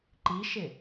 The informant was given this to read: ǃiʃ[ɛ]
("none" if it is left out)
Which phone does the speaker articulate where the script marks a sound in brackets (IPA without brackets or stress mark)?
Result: ɪ